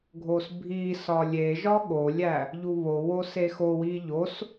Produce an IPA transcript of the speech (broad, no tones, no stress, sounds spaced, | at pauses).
ɡʱ o s bʱ i s ɒ lʲ e ʒ ɒ ɠ o lʲ æ | ʎ u β o w o s e x o w i ʎ o s